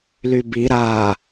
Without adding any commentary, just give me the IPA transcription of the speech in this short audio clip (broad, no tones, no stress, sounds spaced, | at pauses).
l y b i ɾ a